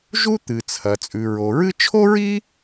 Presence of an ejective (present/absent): present